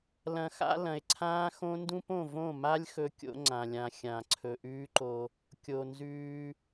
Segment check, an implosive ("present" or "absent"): absent